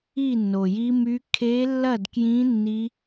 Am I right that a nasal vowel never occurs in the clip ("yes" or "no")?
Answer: no